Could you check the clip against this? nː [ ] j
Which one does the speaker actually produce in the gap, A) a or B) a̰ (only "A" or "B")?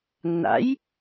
B